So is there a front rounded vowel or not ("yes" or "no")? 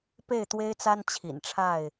no